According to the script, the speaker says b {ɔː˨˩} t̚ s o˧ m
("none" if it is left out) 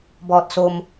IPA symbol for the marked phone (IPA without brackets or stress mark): ɔː˨˩